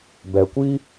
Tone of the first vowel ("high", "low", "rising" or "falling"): low